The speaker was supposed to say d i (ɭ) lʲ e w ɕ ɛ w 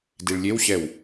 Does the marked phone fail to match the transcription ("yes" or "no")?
no